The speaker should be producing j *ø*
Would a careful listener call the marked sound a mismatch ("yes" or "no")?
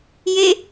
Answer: yes